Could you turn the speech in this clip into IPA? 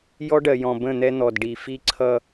jɔ˦ɖɜ˨ jɔ̃˨bə̃˦˨n̪ɛ˦ n̪ɔ˨dɖi˨ fi˦ǀʰʌ˦

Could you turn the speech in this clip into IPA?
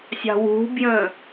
sʲɑ̤wṳbjə̃

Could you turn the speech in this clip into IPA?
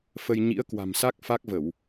fə˧j ɲḭ˧˥ə̯kwa̤˨˩msa˦˥k̚ fa˦˥k̚və˧˩˨w

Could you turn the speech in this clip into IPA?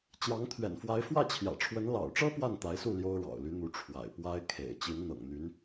t͡ɕjɑ˧˥ŋt̪ʰɥɛ̰˨˩nfwa˧˥ɪ̯ fwä˥˩t͡ɕʰjä̰˨˩ʈ͡ʂʰwə˧˥n lɑ̰˨˩ʊ̯ʈ͡ʂɤ˥ pwa˥˩nt̪a˧˥ɪ̯su˥˩ ljo˥ʊ̯ɻɑ̰˨˩ʊ̯ly˧˥n̪u˧˥ ʈ͡ʂʰwa̰˨˩ɪ̯ pwa˥ɪ̯ kʰḛ˨˩ɪ̯ t͡ɕi˧˥nn̪ɤ̰˨˩ŋn̪y˧˥n

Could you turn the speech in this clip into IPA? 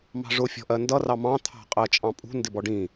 mɑ̤ʐʊ fʲɔ̤ʔɜndʌ rɑmɑ̃ t̪ʰɑ̤qʼɜt͡ʃʼɑ̃ pʼṳ ndɪbɔɖĩ

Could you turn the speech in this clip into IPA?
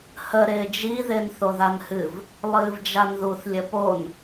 hə ɾɪːd͡ʒi ðɪːnθoðanhɨv | lˠɨːvd͡ʒanðuθ lʲəpon

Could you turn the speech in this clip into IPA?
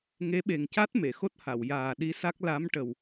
ŋe˧˥ɓe˨˩ŋca˦˥t̚ me˨˩˨xo˦˥t̚ha˨˩˨w jaː˨˩ɗi˧˥sa˦˥k̚ la˧˥mʈə˨˩w

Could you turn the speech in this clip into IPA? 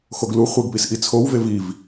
xoɡlu χʷeɡpisʔi t͡sʰowvev iv

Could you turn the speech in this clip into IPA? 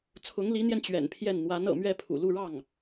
t͡sʰʊ˧˥ŋli˧˥n̪jɛ˧n t͡ɕɥɛ̰˨˩npʰjɛ˥˩n n̪wa˧˥n ɤ̰˨˩mɥɛ˥˩pʰṵ˨˩lu˥˧ ɻɑ˥˩ŋ

